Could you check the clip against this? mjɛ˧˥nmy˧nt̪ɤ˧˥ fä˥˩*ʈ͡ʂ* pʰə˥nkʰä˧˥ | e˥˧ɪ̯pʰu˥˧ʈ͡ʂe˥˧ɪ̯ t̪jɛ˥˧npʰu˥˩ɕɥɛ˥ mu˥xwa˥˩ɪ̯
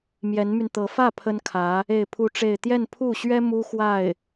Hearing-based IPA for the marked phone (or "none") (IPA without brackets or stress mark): none